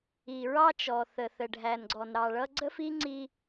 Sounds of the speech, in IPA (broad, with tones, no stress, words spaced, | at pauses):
i˨ɹɑ˦t͡ʃɔ˨ θə˨θə˨ɖʱæ˨nɡ͡ǀɔ˨n ɾɑ˨ɭʌ˦ ɡ͡ǀə˦fi˦ ŋ͡ǀi˦